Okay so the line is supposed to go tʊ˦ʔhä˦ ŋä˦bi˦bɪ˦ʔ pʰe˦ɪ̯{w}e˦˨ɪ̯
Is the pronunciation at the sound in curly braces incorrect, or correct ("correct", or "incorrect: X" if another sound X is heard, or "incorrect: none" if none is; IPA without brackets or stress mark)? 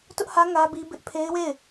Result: correct